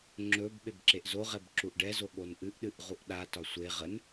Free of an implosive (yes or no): no